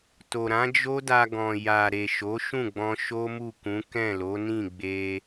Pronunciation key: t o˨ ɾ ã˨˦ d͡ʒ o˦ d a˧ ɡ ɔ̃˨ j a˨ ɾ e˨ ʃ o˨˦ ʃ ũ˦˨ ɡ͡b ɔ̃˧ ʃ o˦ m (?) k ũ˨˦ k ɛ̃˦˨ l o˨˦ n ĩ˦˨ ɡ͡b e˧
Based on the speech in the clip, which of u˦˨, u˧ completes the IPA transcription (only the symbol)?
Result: u˦˨